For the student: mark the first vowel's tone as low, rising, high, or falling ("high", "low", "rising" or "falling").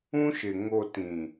high